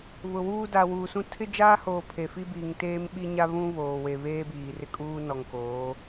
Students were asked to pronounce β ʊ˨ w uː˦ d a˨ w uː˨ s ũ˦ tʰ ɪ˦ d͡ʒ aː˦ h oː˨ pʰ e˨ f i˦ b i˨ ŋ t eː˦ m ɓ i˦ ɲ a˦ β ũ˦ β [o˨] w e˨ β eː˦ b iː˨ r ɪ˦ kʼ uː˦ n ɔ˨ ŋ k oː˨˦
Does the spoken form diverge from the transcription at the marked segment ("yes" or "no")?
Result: yes